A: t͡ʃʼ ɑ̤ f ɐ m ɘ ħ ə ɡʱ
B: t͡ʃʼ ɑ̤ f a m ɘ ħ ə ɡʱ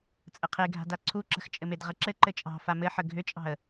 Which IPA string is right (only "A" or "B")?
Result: B